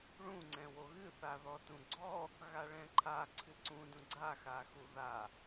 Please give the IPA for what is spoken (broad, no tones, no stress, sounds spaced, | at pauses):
ɭ ũ ŋ͡ǀ ɛ̃ w o ɣ ɨ θ a ð ɔ t ũ ɡ͡ǀ ɔ | ɣ a ɭ ɛ̃ ǃʰ a ǀʰ ɨ ǀ ũ d ũ ɡ͡ǀ a x a x u ð a